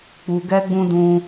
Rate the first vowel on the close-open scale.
close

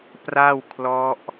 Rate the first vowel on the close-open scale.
open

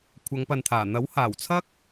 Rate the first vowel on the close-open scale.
open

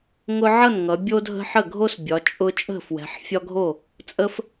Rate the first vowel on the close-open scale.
close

